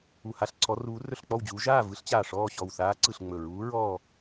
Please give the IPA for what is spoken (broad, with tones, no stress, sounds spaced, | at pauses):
u˧˩ h a˥˨ ɬ ǀʰ ɔ˧˥ r uː˧˥ r ɵ˥˨ ɬ k͡p ɔ˥˨ w d͡ʑ uː˧˥ ʒ aː˥˨ v ɯ˧˥ ɬ t͡ɕ aː˧˩ ʂ ɔː˥˨ ɕ ɔ˧˩ w θ aː˧˥ ǀ ɯ˧˩ ɬ ŋ͡m ɵ˧˩ ɹ uː˧˥ ɹ ɔː˥˨